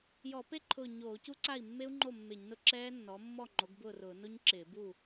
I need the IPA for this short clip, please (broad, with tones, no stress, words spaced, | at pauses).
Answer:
jɔ˧˩˧pe˦˥ǃʰʊː˧˩ ɲoː˧˩˧cu˦˥ǀa˥˩i̯ mːe˦˥u̯ŋ͡ǃo˥˩ mːe˧˩˧ɲnʊ˥˩ ǁɛː˦˥nːɔ˩˥ mːɔ˥˩ ŋ͡ǃo˩˥ɡbʊː˥˩rʊː˧˩˧ no˦˥ɲǁɪː˧˩˧ bu˥˩